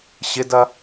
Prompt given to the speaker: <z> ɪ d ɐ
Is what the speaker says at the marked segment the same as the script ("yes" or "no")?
no